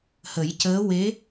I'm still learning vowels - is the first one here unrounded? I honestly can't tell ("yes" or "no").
yes